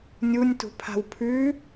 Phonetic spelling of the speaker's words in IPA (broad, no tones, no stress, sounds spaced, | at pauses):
nʲ u nʲ t ṳ pʰ a̤ w pʰ ʉ